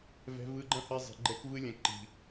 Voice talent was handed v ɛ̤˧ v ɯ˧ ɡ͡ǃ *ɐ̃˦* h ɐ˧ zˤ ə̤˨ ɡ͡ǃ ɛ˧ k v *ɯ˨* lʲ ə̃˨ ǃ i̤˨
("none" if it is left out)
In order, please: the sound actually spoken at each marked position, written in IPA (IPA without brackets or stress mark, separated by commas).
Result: ɐ̃˦, ɯ˧